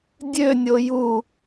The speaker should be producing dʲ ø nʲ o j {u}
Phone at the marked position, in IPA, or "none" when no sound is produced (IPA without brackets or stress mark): u